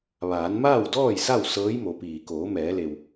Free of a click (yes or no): yes